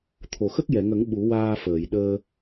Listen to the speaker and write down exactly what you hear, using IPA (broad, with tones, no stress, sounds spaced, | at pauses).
t̪ʰ o˨˩˨ x ə˦˥ k̚ j ɛ˨˩˨ ŋ ə˨˩˦ ŋ ɓ u˨˩˦ w aː˧ f əː˨˩˨ j ɗ əː˧